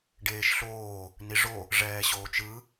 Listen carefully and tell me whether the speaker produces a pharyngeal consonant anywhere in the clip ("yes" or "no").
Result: no